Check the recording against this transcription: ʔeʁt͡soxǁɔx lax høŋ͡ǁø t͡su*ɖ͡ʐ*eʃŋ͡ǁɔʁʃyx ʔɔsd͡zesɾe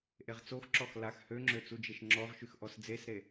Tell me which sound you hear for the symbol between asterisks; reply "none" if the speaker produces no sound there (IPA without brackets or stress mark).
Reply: d͡ʒ